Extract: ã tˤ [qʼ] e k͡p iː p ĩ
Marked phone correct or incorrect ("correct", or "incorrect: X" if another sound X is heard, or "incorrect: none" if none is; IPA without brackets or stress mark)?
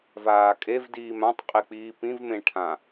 correct